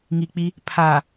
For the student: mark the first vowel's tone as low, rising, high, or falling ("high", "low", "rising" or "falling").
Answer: low